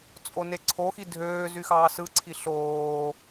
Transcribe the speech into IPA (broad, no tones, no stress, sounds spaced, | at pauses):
t͡sʼ o n e ǀʰ o x i dʱ øː z y x ɑː s ɯ ǀʰ i ɬ oː